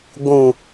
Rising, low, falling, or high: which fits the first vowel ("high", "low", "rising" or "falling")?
low